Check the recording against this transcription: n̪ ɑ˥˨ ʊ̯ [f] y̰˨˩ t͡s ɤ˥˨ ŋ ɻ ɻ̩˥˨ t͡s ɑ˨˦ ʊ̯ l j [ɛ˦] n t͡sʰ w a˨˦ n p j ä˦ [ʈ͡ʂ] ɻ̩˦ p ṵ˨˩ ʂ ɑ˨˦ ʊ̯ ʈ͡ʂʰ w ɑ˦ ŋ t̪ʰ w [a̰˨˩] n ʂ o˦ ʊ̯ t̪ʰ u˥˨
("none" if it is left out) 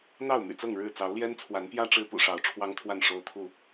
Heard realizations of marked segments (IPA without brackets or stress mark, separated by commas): m, ɛ˦, ʈ͡ʂ, a˥˨